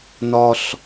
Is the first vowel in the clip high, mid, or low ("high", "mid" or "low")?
low